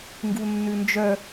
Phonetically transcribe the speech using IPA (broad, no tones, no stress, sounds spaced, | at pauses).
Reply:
ŋ ɡ u nː ʉ n d͡ʒ œ